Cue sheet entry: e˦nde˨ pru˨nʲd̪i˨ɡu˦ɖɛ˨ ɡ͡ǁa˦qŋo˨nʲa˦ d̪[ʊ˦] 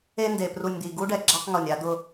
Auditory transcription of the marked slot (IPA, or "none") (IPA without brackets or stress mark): ʊ˦